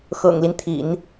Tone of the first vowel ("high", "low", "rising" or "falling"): low